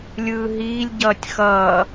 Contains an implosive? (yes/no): no